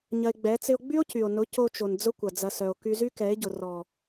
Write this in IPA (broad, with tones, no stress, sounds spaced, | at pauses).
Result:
ɲ ɐ˧ e̯ ɡ͡b ɛ˨˦ t͡s ɪ˧ o̯ ɡ͡b y˦ o̯ c y˨ o̯ n ʊ˨˦ c o˧ t͡ʃ o˨ n d͡z ʊ˦ kʷ ɐ˨ d͡z ɐ˧ s œ˨ o̯ k y˧ z y˦ k ɛ˨˦ e̯ ɟ ʊ˨ r ɔ˨